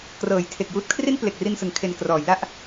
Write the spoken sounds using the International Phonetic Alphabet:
k r ɤː˩˦ j tʰ e˨˩ k̚ j uː˦˥ t̚ kʰ r i˥˩ n p l e˨˩ k̚ r i˧ n s ɯ˩˦ ŋ kʰ e˨˩ n k r ɔː˩˦ j l a˥˩ ʔ

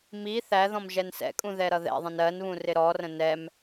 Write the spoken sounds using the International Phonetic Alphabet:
m i θ æ ð ɔ̃ m ʒ ɛ n s ɛ̰ kʼ ũ ð ɛ ɾ ʌ ð ɛ̰ ðˤ ə̃ n ɜ n β ũ r ɪ ɾ ɔ r ə̃ n ɛ m

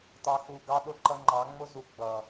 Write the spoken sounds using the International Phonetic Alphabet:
t ɑ˨ x u˨ ɡ ɑ˦ ɗ ʊ˦ ǃ ʌ˦ ŋ͡ǃ ɑ˨˦ ŋ͡m ʊ˦ z u˨ ɡ͡b ʌ˨

